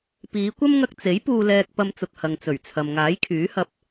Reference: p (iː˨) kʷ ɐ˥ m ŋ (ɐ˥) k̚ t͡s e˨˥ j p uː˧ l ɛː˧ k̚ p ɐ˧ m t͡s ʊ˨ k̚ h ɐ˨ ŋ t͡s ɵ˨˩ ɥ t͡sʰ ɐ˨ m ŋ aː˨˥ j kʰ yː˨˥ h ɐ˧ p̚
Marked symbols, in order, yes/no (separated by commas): no, no